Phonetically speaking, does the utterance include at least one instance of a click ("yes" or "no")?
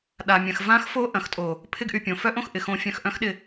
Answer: no